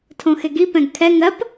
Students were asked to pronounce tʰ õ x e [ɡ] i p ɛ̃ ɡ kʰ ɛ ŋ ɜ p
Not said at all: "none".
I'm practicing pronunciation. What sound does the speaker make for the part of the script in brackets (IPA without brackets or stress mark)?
ɡ